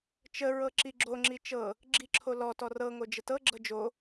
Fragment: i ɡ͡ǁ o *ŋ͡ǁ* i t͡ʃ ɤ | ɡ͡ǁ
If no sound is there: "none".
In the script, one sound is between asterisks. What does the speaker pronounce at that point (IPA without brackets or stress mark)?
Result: ŋ͡ǁ